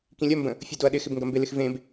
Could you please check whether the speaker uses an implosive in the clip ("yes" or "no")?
yes